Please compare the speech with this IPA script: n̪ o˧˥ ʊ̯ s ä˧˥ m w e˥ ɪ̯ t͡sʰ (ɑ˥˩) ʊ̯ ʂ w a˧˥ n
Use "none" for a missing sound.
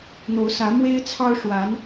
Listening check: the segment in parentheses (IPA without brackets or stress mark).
ɑ˥